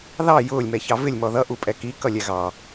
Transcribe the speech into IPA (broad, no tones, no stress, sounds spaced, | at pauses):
ð ɑ j ʊː lʲ m ɛ ç ɑ v ɪ lʲ m ɔ ð ʌ ʔ u pʼ ɛ k i k ʌ lʲ ɛ ɣ ɑ